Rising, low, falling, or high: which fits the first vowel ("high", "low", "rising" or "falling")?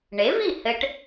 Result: rising